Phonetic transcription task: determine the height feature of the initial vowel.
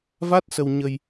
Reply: low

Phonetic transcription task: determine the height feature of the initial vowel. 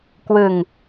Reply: high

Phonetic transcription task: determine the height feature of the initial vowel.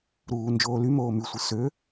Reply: high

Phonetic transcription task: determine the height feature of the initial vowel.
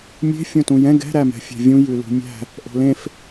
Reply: mid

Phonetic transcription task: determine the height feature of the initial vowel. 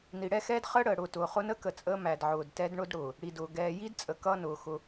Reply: high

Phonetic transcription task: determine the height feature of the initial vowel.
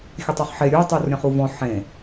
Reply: mid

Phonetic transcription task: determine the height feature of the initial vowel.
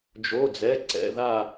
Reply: mid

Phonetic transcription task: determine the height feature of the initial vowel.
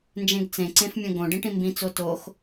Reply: mid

